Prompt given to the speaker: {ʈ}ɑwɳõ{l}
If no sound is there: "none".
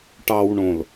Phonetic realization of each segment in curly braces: ʈ, l

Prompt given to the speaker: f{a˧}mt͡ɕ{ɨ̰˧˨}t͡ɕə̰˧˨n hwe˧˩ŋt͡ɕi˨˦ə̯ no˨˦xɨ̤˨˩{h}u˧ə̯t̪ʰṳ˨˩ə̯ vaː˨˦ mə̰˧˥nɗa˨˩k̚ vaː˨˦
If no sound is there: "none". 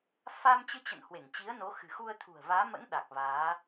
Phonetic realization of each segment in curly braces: a˧, ɨ˧, x

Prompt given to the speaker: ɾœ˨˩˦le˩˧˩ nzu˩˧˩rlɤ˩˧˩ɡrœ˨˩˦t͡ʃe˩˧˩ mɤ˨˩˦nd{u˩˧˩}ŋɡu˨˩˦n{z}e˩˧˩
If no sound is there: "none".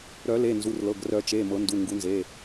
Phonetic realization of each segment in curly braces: u˩˧˩, z

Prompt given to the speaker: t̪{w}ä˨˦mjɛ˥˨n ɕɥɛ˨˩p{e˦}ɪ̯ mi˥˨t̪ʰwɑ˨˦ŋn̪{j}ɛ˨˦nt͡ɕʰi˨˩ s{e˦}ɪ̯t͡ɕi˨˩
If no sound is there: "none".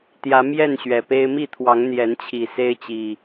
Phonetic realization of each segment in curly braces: j, e˦, j, e˦

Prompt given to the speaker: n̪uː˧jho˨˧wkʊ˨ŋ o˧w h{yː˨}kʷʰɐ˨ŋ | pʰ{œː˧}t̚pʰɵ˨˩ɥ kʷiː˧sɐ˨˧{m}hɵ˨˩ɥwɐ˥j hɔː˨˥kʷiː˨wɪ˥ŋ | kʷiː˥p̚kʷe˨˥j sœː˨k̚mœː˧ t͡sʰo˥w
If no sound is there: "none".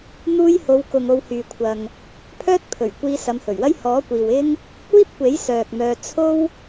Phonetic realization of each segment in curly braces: yː˨, œː˥, m

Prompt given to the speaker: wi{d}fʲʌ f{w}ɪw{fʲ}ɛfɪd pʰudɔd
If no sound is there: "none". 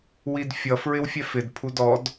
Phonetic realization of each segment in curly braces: d, ɹ, fʲ

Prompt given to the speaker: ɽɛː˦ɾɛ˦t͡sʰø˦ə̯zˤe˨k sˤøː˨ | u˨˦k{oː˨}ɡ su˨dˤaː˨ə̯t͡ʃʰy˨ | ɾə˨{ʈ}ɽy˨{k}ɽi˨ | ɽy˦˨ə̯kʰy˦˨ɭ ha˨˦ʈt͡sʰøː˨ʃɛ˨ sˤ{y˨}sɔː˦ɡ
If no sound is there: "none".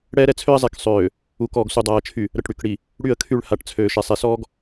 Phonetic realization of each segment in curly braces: ɔː˨, ʈ, k, e˨

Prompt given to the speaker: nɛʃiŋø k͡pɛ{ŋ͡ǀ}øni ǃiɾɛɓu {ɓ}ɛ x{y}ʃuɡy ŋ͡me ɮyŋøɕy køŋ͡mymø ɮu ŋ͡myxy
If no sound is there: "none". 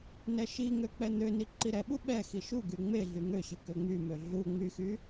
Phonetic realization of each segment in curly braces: n̪, ɓ, i

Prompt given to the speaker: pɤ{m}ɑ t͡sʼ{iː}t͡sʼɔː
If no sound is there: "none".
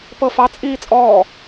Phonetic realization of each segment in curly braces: f, iː

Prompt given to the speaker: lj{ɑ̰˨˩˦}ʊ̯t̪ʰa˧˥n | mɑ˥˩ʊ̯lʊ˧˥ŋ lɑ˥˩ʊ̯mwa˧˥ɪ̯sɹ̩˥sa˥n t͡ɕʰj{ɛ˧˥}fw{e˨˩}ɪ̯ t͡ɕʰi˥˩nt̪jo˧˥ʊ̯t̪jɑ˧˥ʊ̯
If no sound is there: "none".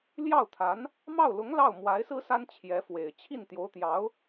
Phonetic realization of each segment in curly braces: ɑ˥˩, ɛ˧˥, e˨˩

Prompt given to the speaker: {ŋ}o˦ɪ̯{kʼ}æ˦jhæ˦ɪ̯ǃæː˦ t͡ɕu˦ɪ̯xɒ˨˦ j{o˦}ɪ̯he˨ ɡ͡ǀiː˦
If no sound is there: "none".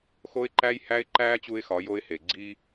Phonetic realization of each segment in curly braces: x, ǃ, o˦

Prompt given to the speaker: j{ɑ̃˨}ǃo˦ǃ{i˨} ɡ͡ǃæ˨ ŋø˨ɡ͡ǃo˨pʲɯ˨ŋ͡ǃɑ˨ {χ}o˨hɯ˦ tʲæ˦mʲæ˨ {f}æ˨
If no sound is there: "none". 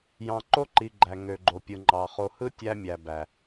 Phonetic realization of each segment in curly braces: ɑ̃˨, i˨, χ, b

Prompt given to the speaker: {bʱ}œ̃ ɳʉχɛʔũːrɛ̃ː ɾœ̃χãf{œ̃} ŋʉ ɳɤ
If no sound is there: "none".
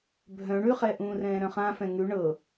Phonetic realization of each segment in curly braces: bʱ, ɛ̃

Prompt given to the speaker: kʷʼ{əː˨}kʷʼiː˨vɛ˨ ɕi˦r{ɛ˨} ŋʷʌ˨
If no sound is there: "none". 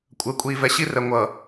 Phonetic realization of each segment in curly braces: əː˨, ɛ˨

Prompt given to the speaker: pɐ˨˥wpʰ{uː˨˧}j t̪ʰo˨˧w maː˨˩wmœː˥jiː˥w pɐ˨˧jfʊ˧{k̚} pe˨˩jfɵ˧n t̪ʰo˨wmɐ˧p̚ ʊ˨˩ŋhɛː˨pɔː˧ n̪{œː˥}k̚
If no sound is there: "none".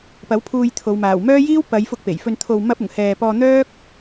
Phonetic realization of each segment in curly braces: uː˧, k̚, œː˥

